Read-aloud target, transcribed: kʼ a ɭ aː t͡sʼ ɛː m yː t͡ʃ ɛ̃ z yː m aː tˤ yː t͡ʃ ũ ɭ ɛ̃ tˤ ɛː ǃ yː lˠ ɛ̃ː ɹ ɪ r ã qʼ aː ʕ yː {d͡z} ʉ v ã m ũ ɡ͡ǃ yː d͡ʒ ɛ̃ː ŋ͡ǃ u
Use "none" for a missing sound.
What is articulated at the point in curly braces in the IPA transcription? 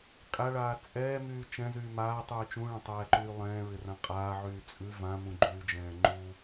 t͡sʼ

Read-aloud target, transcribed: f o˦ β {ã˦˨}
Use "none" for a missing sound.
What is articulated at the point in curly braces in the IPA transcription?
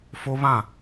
ã˦˨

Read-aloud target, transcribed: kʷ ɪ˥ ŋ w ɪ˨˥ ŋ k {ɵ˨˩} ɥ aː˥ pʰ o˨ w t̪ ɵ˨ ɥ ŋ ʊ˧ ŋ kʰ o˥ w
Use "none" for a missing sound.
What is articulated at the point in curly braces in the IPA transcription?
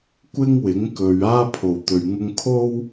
ɵ˨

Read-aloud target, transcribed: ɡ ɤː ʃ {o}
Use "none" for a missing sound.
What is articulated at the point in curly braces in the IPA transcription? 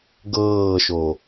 o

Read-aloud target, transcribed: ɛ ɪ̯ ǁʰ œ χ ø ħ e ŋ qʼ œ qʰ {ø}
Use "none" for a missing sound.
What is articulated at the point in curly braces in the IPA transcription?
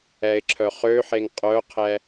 ɛ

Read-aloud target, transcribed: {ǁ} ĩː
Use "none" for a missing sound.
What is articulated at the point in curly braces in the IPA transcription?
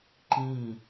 ǃ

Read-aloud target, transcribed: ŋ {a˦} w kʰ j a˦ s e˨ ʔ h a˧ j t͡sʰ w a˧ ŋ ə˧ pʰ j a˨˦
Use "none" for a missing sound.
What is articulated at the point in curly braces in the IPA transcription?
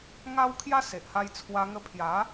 a˦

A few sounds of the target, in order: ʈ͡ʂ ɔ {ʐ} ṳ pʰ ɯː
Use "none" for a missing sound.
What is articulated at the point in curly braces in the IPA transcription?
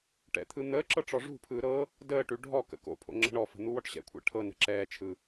ʐ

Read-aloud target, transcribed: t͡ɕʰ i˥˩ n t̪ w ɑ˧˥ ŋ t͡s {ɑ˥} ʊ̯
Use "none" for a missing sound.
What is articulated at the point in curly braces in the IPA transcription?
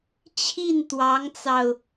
ɑ˧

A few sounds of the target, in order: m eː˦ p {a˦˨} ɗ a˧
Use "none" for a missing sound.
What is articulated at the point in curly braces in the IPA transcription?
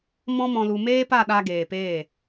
a˦˨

